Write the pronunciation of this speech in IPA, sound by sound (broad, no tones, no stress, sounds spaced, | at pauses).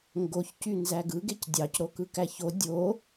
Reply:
ŋ ɡ o ç c y n z æ ɡ ɯ ɡ e c dʲ ɑ c ɾ o k ɯ k æ ç o dʲ o